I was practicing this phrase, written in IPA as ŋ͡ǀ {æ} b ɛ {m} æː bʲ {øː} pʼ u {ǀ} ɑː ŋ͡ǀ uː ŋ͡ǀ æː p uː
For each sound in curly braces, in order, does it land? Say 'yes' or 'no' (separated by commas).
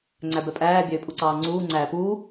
yes, no, yes, yes